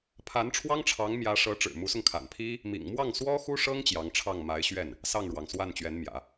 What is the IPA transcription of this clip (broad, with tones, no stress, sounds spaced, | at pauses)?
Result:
pʰ a˧˥ n ʈ͡ʂʰ w ɑ˥ ŋ ʈ͡ʂʰ ɑ˧˥ ŋ m j ä˧˥ ʂ ɤ˧˥ ʈ͡ʂ ɻ̩˨˩ m u˧˥ s ʊ˧ ŋ kʰ a̰˨˩ n pʰ i˥ | m ḭ˨˩ ŋ m w ɑ˥˩ ŋ s w ɔ˥ x u˥ ʂ ɤ˥ ŋ t͡ɕ j ɑ˧˥ ŋ ʈ͡ʂʰ ɑ˥˩ ŋ m a˧˥ ɪ̯ ɕ ɥ ɛ˥˩ n | s ɑ˥˩ ŋ ɻ w ɑ˩ ŋ s w a˥˩ n t͡ɕ ɥ ɛ˧˥ n m j ä̰˨˩˦